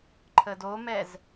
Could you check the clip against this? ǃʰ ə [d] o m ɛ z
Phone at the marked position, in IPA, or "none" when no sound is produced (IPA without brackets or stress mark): d